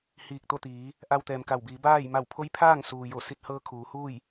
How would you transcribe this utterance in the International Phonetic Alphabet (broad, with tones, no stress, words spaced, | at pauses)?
hiː˧˩k̚t̪o˥˨t̪iː˩˧ | ʔa˧wt̪ɛː˩mka˧˩wbiː˩˧ baː˥˨j ma˧˩wpʰo˧˥j pʰaː˥˨ŋ suː˩jo˧˩ si˧t̚hɤː˧ kʰuː˩˧huː˥˨j